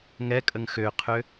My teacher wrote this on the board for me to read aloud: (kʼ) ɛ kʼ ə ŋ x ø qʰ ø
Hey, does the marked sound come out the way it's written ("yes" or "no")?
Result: no